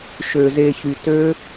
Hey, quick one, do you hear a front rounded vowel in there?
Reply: yes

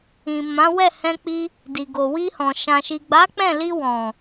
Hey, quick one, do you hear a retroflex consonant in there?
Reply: no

